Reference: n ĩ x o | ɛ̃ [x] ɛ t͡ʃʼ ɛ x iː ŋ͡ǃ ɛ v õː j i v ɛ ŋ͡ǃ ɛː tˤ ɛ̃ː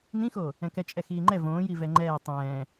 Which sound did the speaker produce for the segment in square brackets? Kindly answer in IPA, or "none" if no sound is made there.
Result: k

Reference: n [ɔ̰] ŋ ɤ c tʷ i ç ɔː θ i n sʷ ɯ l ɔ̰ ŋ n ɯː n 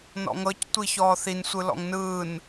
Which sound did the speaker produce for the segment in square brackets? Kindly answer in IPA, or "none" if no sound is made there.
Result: ɔ̰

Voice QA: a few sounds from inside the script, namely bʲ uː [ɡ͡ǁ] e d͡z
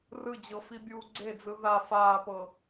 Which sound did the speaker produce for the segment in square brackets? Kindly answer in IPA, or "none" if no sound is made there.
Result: ɡ͡ǀ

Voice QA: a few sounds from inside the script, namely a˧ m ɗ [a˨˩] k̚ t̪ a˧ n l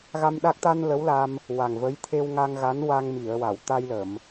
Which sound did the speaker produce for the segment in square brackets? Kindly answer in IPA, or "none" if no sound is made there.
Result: a˦˥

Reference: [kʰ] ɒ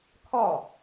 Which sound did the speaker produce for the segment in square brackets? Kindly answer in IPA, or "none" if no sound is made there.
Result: kʰ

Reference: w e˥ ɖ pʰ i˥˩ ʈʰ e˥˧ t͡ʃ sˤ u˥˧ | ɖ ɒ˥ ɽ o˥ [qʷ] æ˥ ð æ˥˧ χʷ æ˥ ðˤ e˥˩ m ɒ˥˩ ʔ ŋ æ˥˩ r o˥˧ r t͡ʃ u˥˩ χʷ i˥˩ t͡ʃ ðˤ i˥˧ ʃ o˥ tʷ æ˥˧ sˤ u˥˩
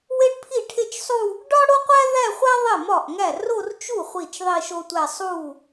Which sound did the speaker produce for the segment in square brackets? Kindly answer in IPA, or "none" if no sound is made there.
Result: qʷ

